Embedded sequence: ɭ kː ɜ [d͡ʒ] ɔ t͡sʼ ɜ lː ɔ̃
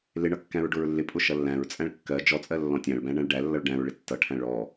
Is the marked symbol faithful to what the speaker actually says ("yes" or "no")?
yes